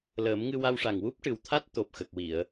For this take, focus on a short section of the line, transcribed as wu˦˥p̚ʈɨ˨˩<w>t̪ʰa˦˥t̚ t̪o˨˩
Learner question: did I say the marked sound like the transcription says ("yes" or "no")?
yes